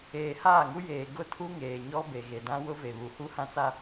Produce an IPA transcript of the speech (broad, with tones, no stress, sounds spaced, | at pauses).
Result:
eː˨ h aː˦˨ ŋ u˦ j eː˨ ɡ ʊ˦˨ tʰ u˦ ŋ eː˨ ɲ ɔ˦ b e˨ ɣ e˨ d ã˦ w ʊ˦ v e˨ β u˨ h u˦ h ã˦ t͡s a˦